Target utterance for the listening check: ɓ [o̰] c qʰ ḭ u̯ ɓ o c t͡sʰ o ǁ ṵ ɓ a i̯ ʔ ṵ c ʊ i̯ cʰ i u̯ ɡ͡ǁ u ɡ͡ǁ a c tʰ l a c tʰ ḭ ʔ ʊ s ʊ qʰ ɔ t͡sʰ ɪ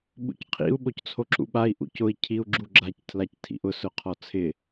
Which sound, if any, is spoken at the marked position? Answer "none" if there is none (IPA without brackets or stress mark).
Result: ṵ